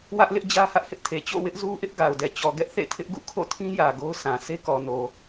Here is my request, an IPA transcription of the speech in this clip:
w ä˦ ʔ l ɪ˦ ʔ d͡ʑ ä˦ h ä˦ ʔ h ɪ˦ ʔ tʰ e˨ t͡ɕ o̰˦˨ w ɪ˦ ʔ z u˦ ʔ ɪ˦ ʔ ɡ a˨ ʊ̯ d ɛ˨ t͡ɕ ɔ˨ ɡ ɛ˦ ʔ θ ḛ˦˨ tʰ ɪ˦ ʔ ɡ ṵ˦˨ kʰ o̰˦˨ tʰ ĩ˦ j ä˨ ɡ o˦ ʊ̯ s ã˨ s e˦ k ɔ˨ n o˨

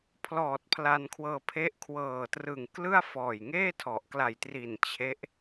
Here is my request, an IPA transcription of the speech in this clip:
pʰ l ɔː˨˩ t̚ pʰ l a˧ n kʰ w ɤː˧ pʰ e˦˥ ʔ kʰ w ɤː˨˩ t r ɯ˨˩ ŋ k l ɯ˥˩ a̯ f ɔː˨˩ j ŋ eː˥˩ tʰ ɔ˨˩ ʔ k l a˨˩ j t r i˨˩ n t͡ɕʰ e˦˥ ʔ

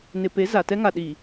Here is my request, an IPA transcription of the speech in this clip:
n ɪ˨ p e˨˦ z a˨ t ɛ˦ ŋ a˨ ɗ iː˨

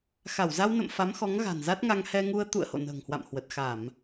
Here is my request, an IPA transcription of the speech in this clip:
x a˧˩ w z a˧ w n ə̰˧˨ m f a˨˦ m x ɔ˨˦ ŋ ɣ a̤˨˩ n z a˦˥ t̚ ŋ a˧ ŋ h ɛ˧ ŋ u˧ ə̯ t̪ ṵ˧˨ ə̯ h o̰˧˨ n ə̤ː˨˩ ŋ h w a̰˧˨ m h w ə˨˩ t̚ x a˧˩˨ m

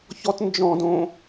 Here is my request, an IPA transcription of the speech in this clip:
ç ɔ t n d͡ʒ ɔ̃ d õ

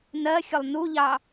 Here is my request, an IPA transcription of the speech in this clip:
n ɜ xʲ ʊ lˠ n u ʎ ɑ

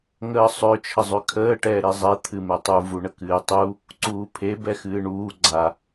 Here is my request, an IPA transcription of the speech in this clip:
ŋ əː sˤ ø t͡ʃʰ ə zˤ ø kʰ əː ʈ ɛː ɾ e zˤ ɛ t̪ʰ ɨ m ɛ tˤ u v u ɳ ə k ɨː tˤ u | ǀ uː pʰ e b ɛ x ɨː ɳ uː ɡ͡ǀ a

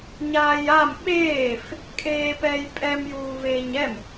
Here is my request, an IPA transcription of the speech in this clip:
ɲ aː j a m ɓ eː f | kʼ eː p ɛː j pʼ ɛ m j uː v eː ɲ ɛ m

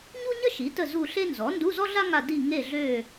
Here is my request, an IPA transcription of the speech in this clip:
ɲ u˥ ɲ ə˥ ʃ i˩˥ t ə˦˨ z u˦˨ ɬ e˥ n z ɔ˩˥ n d u˧˥˧ z ɔ˥ ɮ a˥ ŋ a˦˨ d i˦˨ ŋ e˦˨ ɮ ø˦˨

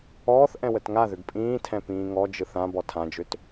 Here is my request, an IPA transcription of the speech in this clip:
ɔː θ ʔ ɛ̃ w ə t ŋ a ð ʏ ɡ pʼ ĩː tʰ ɛ̃ p ĩː ŋ ɔ d͡ʒ ɯ θ ã b ɔ tʰ ã d͡ʒ ʏ t

